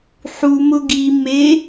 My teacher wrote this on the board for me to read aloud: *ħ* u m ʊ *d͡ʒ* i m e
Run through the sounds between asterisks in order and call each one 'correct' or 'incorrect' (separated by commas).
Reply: correct, incorrect